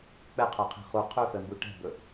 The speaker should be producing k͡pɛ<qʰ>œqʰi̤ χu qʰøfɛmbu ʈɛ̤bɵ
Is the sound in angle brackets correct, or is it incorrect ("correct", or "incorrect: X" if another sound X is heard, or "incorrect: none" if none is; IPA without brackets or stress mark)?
correct